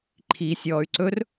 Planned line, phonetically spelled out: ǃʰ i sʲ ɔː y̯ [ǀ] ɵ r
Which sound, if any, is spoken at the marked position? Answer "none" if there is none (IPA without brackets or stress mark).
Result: ǀ